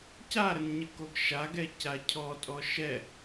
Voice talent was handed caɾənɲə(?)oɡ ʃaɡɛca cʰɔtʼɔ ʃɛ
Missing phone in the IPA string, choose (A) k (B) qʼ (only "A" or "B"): A